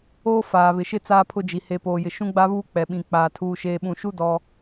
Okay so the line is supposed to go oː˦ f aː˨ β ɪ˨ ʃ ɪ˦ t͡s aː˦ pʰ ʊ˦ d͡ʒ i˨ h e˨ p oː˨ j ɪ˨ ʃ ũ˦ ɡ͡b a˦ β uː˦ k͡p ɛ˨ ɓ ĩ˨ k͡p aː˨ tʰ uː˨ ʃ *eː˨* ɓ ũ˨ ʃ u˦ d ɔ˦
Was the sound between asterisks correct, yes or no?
yes